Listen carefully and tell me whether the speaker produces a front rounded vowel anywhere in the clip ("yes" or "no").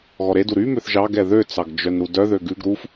yes